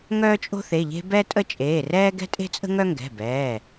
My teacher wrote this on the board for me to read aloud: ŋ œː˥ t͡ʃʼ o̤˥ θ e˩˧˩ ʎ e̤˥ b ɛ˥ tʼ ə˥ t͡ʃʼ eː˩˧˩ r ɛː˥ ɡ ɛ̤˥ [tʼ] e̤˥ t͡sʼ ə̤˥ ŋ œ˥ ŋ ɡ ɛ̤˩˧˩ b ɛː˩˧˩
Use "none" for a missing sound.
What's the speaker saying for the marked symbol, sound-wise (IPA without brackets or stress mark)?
tʼ